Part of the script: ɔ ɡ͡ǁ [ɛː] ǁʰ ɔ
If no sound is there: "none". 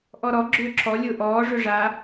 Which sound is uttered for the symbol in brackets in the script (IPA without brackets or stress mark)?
ʏː